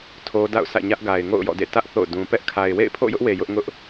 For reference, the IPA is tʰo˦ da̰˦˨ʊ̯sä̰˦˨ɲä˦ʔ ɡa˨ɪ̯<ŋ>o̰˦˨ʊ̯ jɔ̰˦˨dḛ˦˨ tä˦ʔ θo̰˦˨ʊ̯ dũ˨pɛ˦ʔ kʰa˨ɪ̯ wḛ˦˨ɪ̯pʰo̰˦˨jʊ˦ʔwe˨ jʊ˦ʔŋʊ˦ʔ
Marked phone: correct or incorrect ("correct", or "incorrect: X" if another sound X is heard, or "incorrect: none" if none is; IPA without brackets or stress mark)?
correct